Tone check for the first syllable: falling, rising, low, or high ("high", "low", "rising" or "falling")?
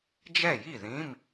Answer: falling